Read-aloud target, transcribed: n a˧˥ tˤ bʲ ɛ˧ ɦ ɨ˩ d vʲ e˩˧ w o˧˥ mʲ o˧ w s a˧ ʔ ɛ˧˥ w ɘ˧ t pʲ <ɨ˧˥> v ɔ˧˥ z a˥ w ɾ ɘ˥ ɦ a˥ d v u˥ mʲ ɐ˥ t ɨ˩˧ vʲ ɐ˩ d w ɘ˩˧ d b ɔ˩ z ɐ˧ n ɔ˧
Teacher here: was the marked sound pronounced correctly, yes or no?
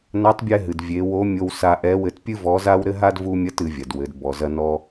no